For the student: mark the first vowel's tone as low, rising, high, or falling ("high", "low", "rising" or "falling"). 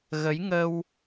rising